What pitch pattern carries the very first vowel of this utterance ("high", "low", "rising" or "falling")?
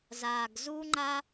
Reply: low